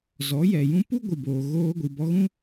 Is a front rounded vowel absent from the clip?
yes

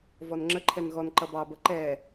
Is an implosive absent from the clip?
yes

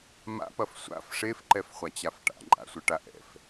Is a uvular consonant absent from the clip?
no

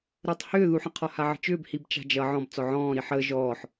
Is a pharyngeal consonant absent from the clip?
no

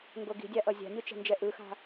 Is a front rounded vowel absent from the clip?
yes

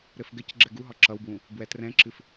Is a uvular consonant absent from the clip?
yes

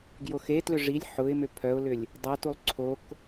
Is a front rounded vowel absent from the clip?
no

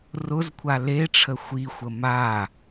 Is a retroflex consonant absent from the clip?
no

